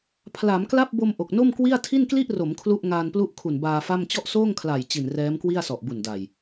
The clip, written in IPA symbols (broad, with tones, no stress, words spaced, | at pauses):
pʰla˩˦mkla˥˩p̚bo˧m ʔo˨˩k̚no˥˩mkwi˥˩a̯ tʰi˥˩nkli˥˩ʔro˩˦m kʰlu˥˩ʔ ŋaː˧nplu˥˩ʔkʰu˨˩n baː˧fa˥˩m t͡ɕɔ˥˩ʔsoː˥˩ŋkʰla˨˩j t͡ɕi˨˩nrɛː˦˥mkwi˥˩a̯ sɔ˨˩ʔbu˨˩nda˨˩j